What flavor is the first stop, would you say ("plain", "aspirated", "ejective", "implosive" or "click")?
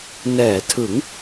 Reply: aspirated